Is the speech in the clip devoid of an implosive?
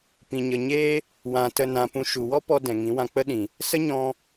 no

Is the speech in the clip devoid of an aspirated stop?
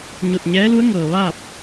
yes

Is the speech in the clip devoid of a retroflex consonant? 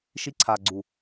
yes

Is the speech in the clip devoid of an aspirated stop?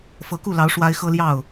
yes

